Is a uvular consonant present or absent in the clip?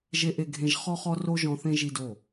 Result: present